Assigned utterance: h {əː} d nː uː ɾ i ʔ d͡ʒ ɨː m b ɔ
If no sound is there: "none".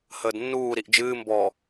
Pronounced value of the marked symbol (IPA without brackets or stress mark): əː